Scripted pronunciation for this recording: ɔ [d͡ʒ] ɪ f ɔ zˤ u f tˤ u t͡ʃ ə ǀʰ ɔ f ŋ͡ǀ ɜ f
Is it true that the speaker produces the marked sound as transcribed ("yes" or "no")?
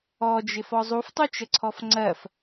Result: yes